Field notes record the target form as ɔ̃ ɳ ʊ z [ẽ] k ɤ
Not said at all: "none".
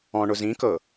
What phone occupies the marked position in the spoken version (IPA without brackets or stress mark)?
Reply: ĩ